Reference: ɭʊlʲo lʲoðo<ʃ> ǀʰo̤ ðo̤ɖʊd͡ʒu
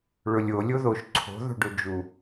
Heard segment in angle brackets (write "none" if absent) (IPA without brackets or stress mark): ʃ